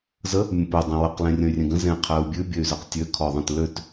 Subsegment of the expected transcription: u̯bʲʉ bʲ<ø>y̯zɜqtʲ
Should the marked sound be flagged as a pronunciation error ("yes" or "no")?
no